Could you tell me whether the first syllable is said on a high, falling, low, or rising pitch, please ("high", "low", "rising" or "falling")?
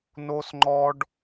high